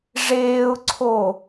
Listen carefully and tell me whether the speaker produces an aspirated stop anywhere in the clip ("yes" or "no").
yes